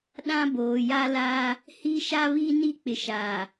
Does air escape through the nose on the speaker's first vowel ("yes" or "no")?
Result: yes